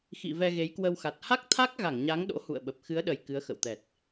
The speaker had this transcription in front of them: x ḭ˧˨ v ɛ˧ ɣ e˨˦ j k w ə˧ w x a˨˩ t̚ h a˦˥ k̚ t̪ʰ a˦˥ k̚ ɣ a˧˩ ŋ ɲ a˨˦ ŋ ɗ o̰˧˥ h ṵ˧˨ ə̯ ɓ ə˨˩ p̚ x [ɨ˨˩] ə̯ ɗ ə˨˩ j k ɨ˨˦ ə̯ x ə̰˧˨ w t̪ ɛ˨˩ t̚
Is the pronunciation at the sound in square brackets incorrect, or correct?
incorrect